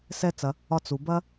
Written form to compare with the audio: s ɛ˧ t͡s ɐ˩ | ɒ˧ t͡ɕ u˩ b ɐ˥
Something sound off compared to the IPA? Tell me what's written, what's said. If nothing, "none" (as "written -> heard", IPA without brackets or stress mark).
t͡ɕ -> t͡s